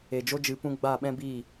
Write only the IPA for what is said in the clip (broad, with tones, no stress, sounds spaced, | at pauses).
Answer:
e˨ d͡ʒ o˦ d͡ʒ ɨ˨˦ p ũ˧ ɡ͡b a˦˨ ɓ ɛ̃˦ b i˦˨